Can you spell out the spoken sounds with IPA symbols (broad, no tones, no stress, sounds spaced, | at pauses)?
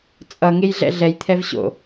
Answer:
t͡sʼ ʌ ŋ e j ɮ ɛ̰ ɮ ɛ j t̪ʰ ɛ v ɕ o̰